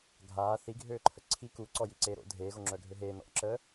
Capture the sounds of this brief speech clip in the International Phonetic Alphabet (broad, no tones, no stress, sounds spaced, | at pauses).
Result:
ɡʱ aː θ i ɡʱ øː ǃʰ ə ǀʰ i k u ǀ ɔ j i ǀ eː ɾ o̰ dʱ eː ɣ o ŋ͡ǁ œ ɡʱ ø ɦ eː n ɔ̰ ǁ əː